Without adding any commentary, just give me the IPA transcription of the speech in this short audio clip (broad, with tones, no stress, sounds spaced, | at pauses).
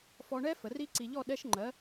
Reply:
f ɔ˧ ɳ ɛ˦˥ f ə˩˧ r i˦˥ ǀ i˧ ʎ ɔ˥˧ ɗ ɛ˦˥ ʃ ŋ͡ǃ ɜ˨˥